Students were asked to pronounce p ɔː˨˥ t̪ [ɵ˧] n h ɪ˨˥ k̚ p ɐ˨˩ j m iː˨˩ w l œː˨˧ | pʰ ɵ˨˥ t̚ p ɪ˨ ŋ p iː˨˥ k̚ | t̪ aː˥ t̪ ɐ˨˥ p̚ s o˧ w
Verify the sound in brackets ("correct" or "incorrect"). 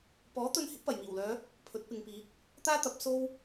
correct